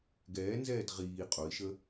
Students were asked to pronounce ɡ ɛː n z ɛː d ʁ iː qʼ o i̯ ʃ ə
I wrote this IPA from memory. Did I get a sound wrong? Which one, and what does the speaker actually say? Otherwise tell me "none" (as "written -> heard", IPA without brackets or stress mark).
none